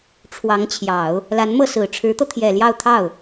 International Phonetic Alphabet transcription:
ʈ͡ʂʰwɑ˧˥ŋt͡ɕʰjɑ˨˩˦ʊ̯ | la˧˥nmɤ˥˩sɹ̩˨˩ ʈ͡ʂʰɻ̩˧˥t̪ɤ˧t̪ʰjɛ˨˩ljɑ˥˧ʊ̯ t̪ʰɑ˥˩ʊ̯

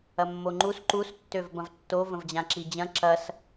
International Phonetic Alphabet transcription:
ɐmːoŋ͡ǃus ǃustːøv bɐ̃vtːo və̃vd͡ʑãǁid͡ʑɐ̃ ǁɐs

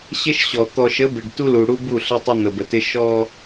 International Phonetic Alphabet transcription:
ɕɪ˦ʃɕɔ˨ t̪ɔ˨ʃə˨˦bɪ˨ɖ tu˦lu˨ɽu˦ bu˦˨ɬə˦tˤə˦ n̪ə˨bə˨tɪ˦ ʃɔ˦

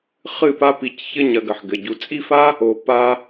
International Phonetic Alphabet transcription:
χɨ˥˧pa˥pi˧c çɘ˥˧ɲ ɐ˧ ɡɐ˩˧˩ħɡɘ˩˧˩ɟu˧ t͡sʼi˥˧fa˥ | o˧ pa˥

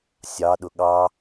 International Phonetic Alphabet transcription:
sʲɑ ɗʊɠɑ

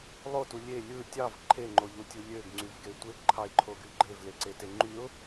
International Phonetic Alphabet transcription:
lˠotu lʲe lʲɯ tʲɑv ǃʰeŋ͡ǃoʎutʲu lʲøɡŋ͡ǀyvɡe tʷeɡǃʰɑɪ̯ǃʰoɡy ɡ͡ǃevleǀete ŋ͡ǃyʊ̯

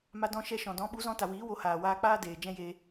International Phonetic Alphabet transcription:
ma˧dɔ̃˧ʃɛ˧ ʃɔ̃˨dɔ̃˨˦ɓu˨˦ zɔ̃˧ta˨ wiː˨˦wo˧haː˨ waː˧k͡paː˦ deː˨ d͡ʒɛ̃˧jeː˧

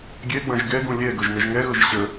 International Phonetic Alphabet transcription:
ɡʲɛɡ͡bɐ̃ʒ ɡɛɡũ lʲɛ ɡɤʒnəʒŋɛɣɤʒ ɕə

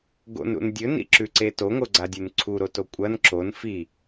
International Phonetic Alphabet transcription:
ɡo̰nɾṵn dʲɵnḭǁʉǀe toŋoɡ͡ǀadʲʉn ǀʰuɾoto kʷʼɐn ǁon fi

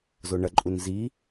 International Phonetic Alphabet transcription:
zoɳɐǃʼun zi

